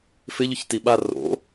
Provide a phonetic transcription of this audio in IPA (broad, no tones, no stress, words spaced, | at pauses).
fɪʎʊçti ɓa ro̰